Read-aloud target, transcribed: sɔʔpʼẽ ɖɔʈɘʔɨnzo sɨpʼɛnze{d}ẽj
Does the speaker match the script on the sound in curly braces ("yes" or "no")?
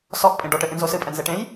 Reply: no